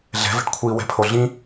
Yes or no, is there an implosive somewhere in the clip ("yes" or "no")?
no